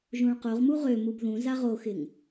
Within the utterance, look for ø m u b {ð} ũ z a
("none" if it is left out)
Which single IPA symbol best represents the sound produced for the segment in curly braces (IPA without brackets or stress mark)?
ð